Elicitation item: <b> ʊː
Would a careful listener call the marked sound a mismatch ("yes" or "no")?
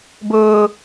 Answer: no